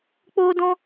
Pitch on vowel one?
high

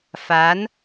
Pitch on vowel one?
rising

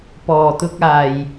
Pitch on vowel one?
low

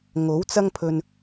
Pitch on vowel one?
rising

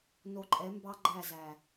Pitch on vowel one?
low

